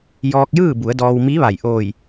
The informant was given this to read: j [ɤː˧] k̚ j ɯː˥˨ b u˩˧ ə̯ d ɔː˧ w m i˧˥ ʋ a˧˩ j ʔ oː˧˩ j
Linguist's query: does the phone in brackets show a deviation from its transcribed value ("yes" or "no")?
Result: yes